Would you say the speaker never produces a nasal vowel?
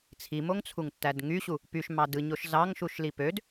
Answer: yes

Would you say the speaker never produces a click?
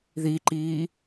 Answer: no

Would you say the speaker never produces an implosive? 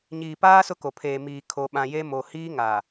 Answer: no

